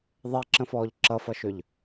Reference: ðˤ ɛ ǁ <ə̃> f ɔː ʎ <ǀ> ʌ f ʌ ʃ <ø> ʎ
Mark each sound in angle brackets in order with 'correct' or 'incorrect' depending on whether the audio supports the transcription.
correct, incorrect, correct

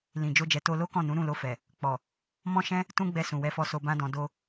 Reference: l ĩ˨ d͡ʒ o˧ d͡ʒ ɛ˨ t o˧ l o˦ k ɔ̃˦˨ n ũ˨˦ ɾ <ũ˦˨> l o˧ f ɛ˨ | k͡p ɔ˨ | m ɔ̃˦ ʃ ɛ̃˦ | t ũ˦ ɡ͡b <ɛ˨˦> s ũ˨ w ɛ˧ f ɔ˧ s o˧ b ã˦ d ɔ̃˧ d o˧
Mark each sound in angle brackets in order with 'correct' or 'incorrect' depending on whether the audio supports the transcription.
correct, incorrect

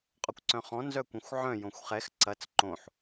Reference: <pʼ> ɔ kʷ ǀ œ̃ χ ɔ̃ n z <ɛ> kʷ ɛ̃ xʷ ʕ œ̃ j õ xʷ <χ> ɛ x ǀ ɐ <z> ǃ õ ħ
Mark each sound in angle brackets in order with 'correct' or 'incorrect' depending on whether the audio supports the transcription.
incorrect, incorrect, correct, incorrect

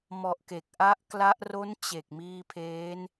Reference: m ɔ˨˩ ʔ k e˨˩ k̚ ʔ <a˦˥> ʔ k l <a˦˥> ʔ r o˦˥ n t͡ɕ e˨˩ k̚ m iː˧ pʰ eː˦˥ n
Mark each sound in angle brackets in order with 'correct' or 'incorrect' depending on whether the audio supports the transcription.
correct, correct

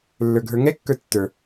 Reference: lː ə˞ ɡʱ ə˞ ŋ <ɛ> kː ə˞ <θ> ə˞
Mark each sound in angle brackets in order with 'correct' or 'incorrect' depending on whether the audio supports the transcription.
correct, incorrect

